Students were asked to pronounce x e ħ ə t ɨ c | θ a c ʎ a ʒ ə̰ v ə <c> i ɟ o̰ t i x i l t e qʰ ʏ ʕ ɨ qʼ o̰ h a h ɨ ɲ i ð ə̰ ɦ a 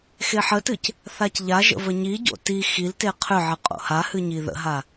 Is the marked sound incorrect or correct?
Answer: incorrect